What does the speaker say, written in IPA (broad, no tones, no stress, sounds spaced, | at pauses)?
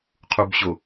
qʰ u b ɕ o